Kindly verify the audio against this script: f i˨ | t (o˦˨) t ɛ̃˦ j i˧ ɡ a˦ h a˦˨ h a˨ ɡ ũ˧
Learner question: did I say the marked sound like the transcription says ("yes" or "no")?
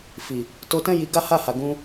no